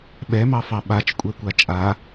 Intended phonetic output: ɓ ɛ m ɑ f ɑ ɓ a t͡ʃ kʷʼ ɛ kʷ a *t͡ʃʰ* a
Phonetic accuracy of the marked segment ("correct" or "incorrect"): incorrect